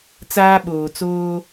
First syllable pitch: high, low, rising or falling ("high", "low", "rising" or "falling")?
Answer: high